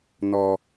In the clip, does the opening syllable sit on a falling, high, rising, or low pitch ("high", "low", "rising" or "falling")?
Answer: low